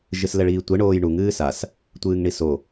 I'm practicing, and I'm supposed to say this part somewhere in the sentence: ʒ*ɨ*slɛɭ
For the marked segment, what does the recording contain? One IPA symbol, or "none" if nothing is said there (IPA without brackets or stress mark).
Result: ɨ